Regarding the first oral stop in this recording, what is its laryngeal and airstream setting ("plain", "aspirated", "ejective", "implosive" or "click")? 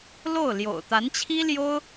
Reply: plain